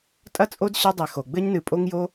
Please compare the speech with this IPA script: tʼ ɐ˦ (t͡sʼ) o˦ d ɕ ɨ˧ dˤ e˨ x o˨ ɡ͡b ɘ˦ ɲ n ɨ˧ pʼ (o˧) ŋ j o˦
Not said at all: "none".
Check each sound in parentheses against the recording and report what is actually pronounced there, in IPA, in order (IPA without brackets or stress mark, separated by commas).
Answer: t͡sʼ, o˦